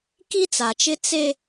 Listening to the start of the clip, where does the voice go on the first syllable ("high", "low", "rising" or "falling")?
high